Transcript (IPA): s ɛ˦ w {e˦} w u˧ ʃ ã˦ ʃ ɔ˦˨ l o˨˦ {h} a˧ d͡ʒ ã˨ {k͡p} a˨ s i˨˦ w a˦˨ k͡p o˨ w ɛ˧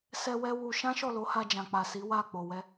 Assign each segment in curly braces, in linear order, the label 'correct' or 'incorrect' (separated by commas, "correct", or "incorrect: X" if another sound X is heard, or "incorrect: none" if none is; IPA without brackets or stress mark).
incorrect: ɛ˦, correct, correct